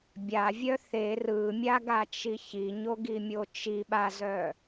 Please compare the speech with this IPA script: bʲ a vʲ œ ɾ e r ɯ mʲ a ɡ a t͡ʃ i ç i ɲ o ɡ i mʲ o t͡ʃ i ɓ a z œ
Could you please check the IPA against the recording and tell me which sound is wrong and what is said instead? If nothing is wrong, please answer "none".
ɾ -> θ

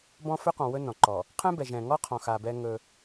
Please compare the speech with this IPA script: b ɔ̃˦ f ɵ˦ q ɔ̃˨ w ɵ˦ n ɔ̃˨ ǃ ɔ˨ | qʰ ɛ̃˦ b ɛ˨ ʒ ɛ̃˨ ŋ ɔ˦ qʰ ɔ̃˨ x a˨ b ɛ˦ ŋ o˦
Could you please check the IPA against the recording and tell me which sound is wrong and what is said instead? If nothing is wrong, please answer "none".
o˦ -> ɵ˦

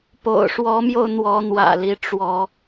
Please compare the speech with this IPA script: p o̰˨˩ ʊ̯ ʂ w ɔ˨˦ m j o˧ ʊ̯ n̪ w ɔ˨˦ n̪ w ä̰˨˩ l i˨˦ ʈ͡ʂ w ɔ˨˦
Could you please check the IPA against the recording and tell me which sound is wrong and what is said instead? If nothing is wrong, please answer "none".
none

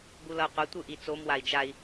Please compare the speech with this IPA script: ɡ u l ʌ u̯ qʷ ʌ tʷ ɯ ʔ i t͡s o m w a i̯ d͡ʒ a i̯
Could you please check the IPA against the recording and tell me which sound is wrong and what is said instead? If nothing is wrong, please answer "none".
none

